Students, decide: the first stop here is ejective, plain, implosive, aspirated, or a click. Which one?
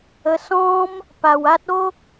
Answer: plain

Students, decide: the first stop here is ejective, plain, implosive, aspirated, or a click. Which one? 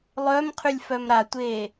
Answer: aspirated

